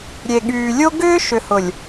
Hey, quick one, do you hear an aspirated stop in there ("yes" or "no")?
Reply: no